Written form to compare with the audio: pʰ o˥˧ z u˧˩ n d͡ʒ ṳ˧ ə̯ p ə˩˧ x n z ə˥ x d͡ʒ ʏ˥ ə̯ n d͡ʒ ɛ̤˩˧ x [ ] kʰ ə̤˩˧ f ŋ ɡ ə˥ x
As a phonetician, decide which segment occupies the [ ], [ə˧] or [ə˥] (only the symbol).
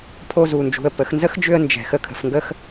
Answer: ə˧